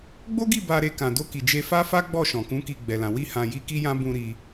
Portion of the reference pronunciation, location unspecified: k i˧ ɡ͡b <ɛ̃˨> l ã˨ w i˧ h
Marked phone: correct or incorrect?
incorrect